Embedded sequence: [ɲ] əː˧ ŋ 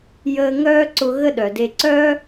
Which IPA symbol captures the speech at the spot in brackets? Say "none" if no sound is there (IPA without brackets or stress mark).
j